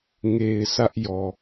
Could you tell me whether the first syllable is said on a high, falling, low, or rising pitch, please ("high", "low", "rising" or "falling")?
low